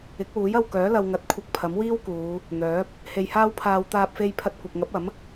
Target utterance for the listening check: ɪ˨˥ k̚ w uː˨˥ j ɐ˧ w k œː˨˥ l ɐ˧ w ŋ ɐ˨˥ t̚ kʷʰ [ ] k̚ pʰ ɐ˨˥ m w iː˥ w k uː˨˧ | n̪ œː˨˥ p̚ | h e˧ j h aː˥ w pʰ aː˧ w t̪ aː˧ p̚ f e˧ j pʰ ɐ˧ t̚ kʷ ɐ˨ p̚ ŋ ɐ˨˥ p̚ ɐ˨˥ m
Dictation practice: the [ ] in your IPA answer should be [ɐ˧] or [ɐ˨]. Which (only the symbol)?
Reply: ɐ˧